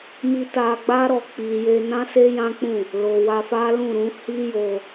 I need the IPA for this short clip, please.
m i˧ t a˧ ɡ͡b a˦ ɾ ɔ˧ k͡p i˨ j e˧ n ã˦ s e˦ j ã˦ k͡p ũ˦˨ | l o˨ w a˧ f a˦ l ũ˦˨ ɾ ũ˨˦ h i˦ j o˧

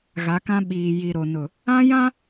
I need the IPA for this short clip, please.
ɣ a˨˦ k ã˦ ɓ iː˨ j i˨ ɾ o˨ n ʊ˨ | ã˦ j ã˦

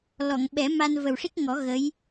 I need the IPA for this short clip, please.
l ɔ˨˩˨ ŋ ɓ ɛ˨˩˦ m a˧ n v ə˨˩ w ʂ i˦˥ k̚ ŋ ɔ˨˩˦ ɣ ə˧˥ j

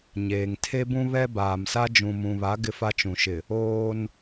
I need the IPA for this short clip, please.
ɲ eː˨ ŋ tʰ e˦ b ũ˦ β ɛ˦ b aː˨ m s a˦ d͡ʒ ũ˨ m ũ˨ β a˨˦ ɡ ɪ˦ f a˦ t͡ʃ ũ˨ ʃ ɪ˨ | oː˦ n

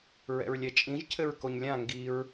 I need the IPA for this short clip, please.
ɹ ɛ̰ ɹ lʲ ɛ t͡ʃʼ ĩ ʒ cʰ ɘ ɹ k o ɲ lʲ ã ŋ ɡ i ɹ

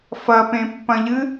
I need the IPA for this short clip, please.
f ɐ p ẽ pː ɐ̃ ʎ ɨ

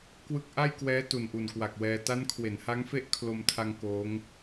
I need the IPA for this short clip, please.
k w ɯ˦˥ k̚ ʔ a˥˩ j k w ɛː˦˥ t u˨˩ n ʔ u˨˩ n k w a˨˩ k̚ w ɛː˧ t a˦˥ n kʰ w e˩˦ n h a˦˥ ŋ f e˥˩ ʔ kʰ l o˧ m tʰ a˧ ŋ k oː˦˥ ŋ

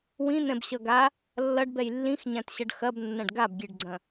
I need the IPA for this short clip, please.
w ĩ n̪ ɛ̃ b ɕ ʌ ɡ a | lː ʌ ɖ b ɛ j lː ĩ x ɲ ã t ɕ ʌ ɖ x ɐ b nː ɐ̃ ɖ ɡ a b ɡʲ ɛ ɖ ɡ͡ǀ ɐ̃

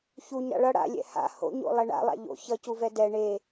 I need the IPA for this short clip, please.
ç u ɲ ɾ a̰ ɭ ʌ ɽ a̰ lʲ ɛ̰ h a̰ h o̰ ɲ o̰ lˠ ɛ ɳ a̰ lˠ a̰ ʎ o̰ ç ʌ c u v ɛ d ɛ ɳ e

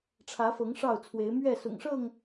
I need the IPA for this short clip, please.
ʈ͡ʂʰ ä˨˦ f ɤ˨˦ ŋ ʂ ɑ˥˨ ʊ̯ t͡sʰ w e˨˦ ɪ̯ m ɥ ɛ˥˨ s ʊ̰˨˩ ŋ ʂ ɤ˥˨ ŋ

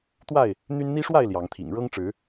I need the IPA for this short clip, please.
t̪ w a˥˨ ɪ̯ | n̪ y˦ n n̪ i˦ ʂ w a˥˨ ɪ̯ l j ɑ˨˦ ŋ t̪ʰ ḭ˨˩ ŋ ɻ ɤ˦ ŋ ʈ͡ʂ ɻ̩˨˦

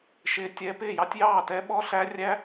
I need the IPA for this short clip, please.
ʃ ɪ˦˥ tʲ ɛ˦˥ p ɪː˥˨ j ɑ˦˥ tʲ j ɑː˥˨ t ɛ˦˥ ɓ ɔ˦˥ ɬ æ˦˥ rʲ æ˦˥

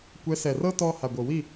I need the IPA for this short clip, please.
kʷ ɛ˨˦ s ɛ˨ r ɤ˦ t ɔ˧ h a˨ ɡʷ ɤ˨ w i˦˨

